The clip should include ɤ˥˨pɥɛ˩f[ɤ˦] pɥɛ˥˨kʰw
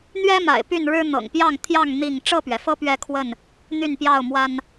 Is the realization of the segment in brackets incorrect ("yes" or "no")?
no